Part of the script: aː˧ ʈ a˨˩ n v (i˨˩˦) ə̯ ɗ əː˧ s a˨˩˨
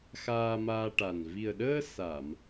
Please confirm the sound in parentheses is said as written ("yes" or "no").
no